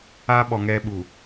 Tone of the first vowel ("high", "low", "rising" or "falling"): high